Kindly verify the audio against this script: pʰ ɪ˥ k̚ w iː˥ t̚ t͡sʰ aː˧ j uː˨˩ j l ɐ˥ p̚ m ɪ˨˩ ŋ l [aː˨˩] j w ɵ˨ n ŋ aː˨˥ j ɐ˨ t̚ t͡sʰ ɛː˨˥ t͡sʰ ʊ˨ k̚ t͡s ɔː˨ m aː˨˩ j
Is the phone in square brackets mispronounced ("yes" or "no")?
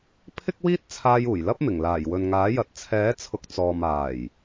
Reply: no